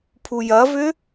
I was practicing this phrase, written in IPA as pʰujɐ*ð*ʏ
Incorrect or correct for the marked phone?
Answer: incorrect: v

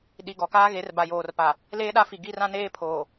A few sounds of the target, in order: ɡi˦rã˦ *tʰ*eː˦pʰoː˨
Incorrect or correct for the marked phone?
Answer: incorrect: n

